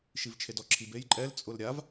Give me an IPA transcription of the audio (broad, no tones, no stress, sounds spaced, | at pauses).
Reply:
ʃ i v t͡ʃʰ e d ɔ ǁʰ i b e j ǃʼ ɛ l t͡sʼ ʊ l ɾʲ a v